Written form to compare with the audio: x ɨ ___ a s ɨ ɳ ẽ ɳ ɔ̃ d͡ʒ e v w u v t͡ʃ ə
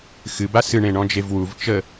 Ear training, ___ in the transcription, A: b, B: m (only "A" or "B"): A